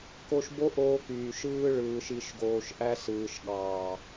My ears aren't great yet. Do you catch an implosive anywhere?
yes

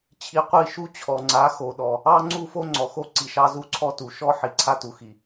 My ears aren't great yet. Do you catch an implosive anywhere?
yes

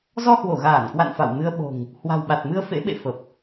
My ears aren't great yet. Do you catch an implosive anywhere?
yes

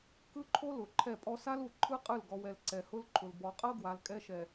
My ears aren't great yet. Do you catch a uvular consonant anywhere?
yes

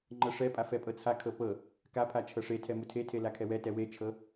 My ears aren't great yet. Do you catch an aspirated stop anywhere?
yes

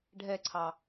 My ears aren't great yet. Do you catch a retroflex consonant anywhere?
yes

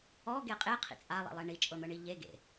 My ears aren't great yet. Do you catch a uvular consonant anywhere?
yes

